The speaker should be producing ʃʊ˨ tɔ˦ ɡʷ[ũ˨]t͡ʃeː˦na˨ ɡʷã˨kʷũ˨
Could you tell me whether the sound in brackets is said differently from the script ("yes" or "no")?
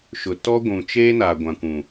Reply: no